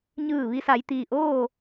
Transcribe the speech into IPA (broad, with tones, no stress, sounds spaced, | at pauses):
ɲ ɯː˧˩ ʋ i˧ s a˩˧ j t̪ iː˩ ʔ oː˥˨